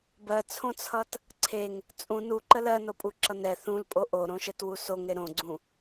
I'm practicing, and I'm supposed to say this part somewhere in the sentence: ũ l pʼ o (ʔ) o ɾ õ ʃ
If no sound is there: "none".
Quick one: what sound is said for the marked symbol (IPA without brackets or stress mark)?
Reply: ʔ